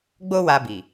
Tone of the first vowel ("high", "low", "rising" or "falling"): high